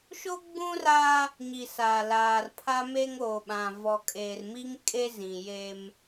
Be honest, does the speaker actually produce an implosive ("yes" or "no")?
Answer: yes